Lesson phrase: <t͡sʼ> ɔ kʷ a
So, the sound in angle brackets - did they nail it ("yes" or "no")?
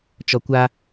no